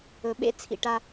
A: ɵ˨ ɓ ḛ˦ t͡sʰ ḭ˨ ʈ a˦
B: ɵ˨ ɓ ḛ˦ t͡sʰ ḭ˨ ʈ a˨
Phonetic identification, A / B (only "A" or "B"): A